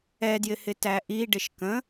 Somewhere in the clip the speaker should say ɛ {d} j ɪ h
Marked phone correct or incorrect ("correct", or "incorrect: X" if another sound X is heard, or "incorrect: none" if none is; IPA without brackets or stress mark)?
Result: correct